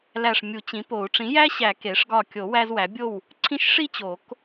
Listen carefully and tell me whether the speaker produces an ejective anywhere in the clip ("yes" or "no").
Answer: no